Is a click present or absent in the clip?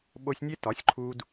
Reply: present